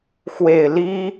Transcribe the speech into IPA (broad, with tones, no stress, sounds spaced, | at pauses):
x w e˨˩ ɪ̯ l i˥